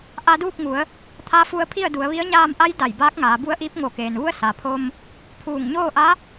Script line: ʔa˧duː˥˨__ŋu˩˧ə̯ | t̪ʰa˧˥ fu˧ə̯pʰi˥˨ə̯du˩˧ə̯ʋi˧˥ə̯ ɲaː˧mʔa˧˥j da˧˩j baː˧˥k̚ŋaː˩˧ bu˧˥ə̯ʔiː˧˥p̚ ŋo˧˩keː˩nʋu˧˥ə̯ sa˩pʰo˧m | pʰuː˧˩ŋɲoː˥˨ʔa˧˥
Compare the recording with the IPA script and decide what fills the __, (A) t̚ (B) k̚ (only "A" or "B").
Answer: B